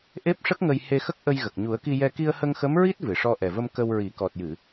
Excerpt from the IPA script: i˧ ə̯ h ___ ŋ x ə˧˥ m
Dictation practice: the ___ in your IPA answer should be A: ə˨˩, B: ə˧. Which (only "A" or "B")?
B